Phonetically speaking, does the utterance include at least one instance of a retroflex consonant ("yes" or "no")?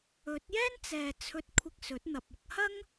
no